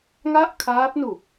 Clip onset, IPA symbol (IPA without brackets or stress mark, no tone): ŋ